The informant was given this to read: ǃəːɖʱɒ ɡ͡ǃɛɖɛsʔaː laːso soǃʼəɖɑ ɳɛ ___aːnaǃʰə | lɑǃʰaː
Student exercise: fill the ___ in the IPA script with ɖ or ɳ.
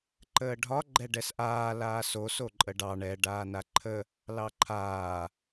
ɖ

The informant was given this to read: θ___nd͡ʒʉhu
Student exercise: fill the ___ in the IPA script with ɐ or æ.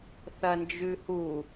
ɐ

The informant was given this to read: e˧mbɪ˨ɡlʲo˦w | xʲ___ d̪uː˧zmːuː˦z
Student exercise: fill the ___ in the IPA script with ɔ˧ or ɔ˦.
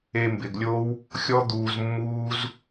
ɔ˦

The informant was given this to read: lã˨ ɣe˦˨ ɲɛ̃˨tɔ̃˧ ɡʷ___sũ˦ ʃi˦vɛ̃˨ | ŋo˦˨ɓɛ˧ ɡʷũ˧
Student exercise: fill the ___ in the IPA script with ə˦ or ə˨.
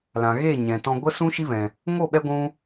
ə˦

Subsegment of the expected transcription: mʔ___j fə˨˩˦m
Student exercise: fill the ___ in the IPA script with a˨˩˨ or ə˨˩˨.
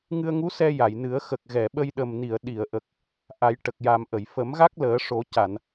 ə˨˩˨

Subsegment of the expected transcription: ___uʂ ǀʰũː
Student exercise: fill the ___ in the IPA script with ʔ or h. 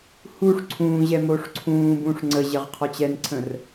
h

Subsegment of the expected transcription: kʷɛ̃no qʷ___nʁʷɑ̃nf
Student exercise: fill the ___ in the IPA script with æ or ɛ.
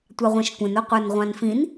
æ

